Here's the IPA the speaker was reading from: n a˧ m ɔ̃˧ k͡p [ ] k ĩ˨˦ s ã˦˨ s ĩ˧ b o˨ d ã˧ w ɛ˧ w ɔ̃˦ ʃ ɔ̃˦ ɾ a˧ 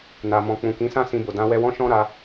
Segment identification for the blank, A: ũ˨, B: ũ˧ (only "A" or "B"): A